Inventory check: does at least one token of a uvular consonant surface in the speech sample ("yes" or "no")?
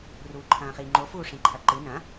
yes